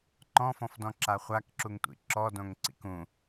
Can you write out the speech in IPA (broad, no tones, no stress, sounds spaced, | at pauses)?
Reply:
ǃ ɔ̃ f ɔ̃ f d ɔ̃ ǁ a χʷ a k ǁ u ŋ tʷ ḭ ǁ ɔ d õ ŋ ǀ ḭ k ũ